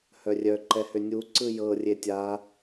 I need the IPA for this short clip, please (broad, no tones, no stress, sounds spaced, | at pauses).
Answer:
h œ rʲ œ ǃ ɛ h ʏ nʲ u ǀ ɯ j ɤ rʲ e tʲ a